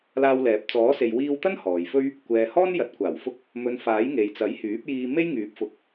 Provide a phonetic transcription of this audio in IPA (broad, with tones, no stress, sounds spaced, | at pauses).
l aː˧ w l ɛː˨ p̚ t͡s ɔː˨˥ s e˨ j w iː˧ w t̪ ɐ˥ n h ɔː˨ j f ɵ˥ ɥ | kʷ ɛː˨ h ɔː˥ n j ɐ˨˥ t̚ kʷ aː˨˩ w f ʊ˥ k̚ | m ɵ˨˧ n f aː˨˥ j ŋ e˨ j t͡s ɐ˨˥ j h yː˨˥ p̚ j iː˧ m e˥ j ŋ yː˨˥ p̚ f ʊ˨˥ k̚